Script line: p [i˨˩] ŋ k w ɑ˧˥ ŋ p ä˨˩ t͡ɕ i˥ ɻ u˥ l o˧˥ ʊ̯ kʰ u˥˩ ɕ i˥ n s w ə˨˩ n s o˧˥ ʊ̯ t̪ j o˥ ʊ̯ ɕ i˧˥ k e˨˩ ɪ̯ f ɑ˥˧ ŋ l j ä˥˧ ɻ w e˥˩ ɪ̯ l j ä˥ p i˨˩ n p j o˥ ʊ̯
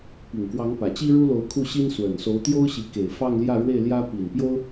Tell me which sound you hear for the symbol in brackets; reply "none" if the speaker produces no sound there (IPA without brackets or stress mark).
i˨˩